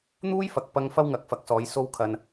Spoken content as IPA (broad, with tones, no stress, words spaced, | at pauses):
n̪uː˥jfɐ˨k̚pɐ˧ŋ fɐ˥wŋɐ˨˥k̚fɐ˨˥k̚sɔː˨˧j so˧wkʰɐ˨n